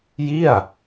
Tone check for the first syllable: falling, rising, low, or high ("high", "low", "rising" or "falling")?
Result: falling